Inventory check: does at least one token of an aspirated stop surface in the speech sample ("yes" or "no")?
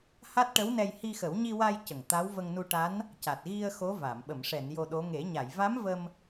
no